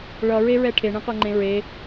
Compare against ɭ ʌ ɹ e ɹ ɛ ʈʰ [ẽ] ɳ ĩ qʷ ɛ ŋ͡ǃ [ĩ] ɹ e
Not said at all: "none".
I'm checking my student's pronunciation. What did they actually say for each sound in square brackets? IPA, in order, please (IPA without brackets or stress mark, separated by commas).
e, ẽ